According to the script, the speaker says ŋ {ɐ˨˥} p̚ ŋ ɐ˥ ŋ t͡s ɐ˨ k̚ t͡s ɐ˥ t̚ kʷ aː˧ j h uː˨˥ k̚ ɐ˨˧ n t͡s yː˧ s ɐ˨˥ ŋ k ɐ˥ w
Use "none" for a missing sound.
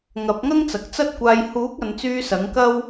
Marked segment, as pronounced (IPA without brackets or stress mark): ɐ˨˥